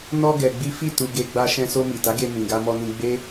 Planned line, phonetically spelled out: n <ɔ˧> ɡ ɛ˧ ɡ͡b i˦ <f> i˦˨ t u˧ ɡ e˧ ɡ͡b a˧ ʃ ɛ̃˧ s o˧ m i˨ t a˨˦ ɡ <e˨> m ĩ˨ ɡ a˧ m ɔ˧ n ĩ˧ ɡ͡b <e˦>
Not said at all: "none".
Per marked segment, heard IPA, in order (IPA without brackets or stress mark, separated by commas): ɔ˧, f, e˧, e˦